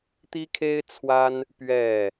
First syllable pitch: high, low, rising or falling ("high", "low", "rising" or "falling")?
high